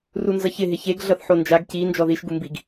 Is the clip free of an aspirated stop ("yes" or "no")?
yes